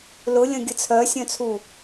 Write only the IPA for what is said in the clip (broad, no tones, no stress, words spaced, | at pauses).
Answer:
lʊlʲɐ̃ ɡʲət͡sʰœsʲœ̃t͡sʰu